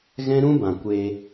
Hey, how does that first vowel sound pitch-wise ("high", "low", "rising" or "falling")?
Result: high